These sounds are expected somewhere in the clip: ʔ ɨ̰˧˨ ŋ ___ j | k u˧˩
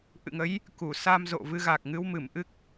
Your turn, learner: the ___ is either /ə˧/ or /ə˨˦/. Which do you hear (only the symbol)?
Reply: ə˨˦